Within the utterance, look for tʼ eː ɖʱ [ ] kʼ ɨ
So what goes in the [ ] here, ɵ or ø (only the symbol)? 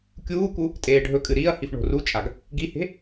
ɵ